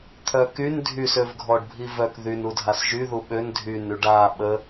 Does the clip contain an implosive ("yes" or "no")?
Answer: yes